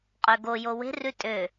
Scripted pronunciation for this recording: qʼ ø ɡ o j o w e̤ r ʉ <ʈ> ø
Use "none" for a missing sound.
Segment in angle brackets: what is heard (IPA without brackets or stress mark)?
tʼ